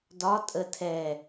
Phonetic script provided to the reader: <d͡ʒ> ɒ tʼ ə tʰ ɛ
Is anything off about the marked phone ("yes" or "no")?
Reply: yes